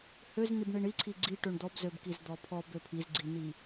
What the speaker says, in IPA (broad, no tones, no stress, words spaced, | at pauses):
høz nibɳiɳiǀʰi ɡ͡ǀi ʈøɳd̪ɔb zøbkizd̪ɔpʰɔb øpʰizɡ͡ǀin̪i